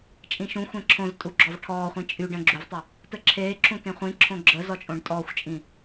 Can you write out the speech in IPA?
t͡ʃʼ ĩ ʃ ũ xʷ ẽ ǁʰ õ z tʼ u ɡ͡ǁ ɔ v ʈʰ ɔː χʷ ĩ t͡ʃʼ y ɖ ə̃ ɡ͡ǁ u v tˤ ə | t ə ǁʰ eː ǁʰ ũ t ẽ χʷ ĩ ǁʰ õ ɡ͡ǁ ə z ɔ t͡ʃʼ õ ɖ tʼ ɔː xʷ t͡ʃʼ ĩ

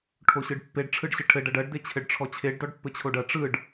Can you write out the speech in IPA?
ʈʰ o ɕ ɯ ɖ pː e ɖ ʈ͡ʂʰ ɯ ɖ ɕ ɘ ʈʰ ɘ ɖ ɐ ɖ ɐ ɖ d e t͡ɕʰ ɘ ɖ ʈ͡ʂʰ ɔ t͡ɕʰ e ɖ d ɔ ɖ pː ɘ t͡ɕʰ o ɖ ɐ ʈ͡ʂ ɯ ɖ

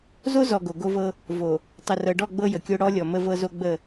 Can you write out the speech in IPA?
z o˦ z ɔ˨ ɡ o˨ ɡ o˦ v ɤ˦ | v o˨ | tˤ ə˨ r ɤ˨ ɖ ɔ˦˨ ɡ͡b ɤ˦ j ə˨ kʲ o˦ ɽ ɔ˦ lʲ ɔ˨ m ə˦ v ɤ˦ z o˦ ɡ͡b ə˦˨

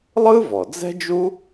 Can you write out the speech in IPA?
lˠ ɯ˥ v ɔ˩ d͡z ɛ̤˥ d͡ʒ u˥

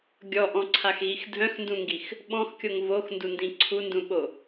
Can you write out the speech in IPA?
ɡʲ ɔ ʔ ɔ̃ ǀʰ a x ɣ i x dʱ œ̃ x n d ũ ŋ ɡ i x | ɓ ɔ̃ x kʲ o ŋ v o x n d u n d ĩ ǀʰ u n d ũ ɓ o

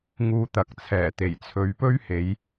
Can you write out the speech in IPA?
ŋ uː˧ t̪ ɐ˨ k̚ t͡sʰ ɛː˨˩ t̪ e˨˩ j t͡sʰ ɵ˨˧ ɥ p ɵ˥ ɥ h e˨˧ j

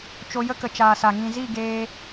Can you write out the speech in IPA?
t͡ʃ o˧ j ə˦ k ə˨ t͡ʃ aː˨ s a˨ ŋ ĩ˨ z i˦˨ ɡ eː˧

